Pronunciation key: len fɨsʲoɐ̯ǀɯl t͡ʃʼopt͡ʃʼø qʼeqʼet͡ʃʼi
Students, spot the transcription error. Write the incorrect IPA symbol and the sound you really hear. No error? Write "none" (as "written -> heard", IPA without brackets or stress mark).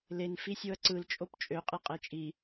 ɨ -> i